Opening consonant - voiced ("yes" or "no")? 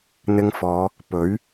yes